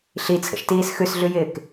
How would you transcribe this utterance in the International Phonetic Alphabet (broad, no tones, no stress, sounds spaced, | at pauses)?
ɬ i t͡sʰ ə̰ ʃ t iː s x ʉ s ɮ ʉ j ɪː k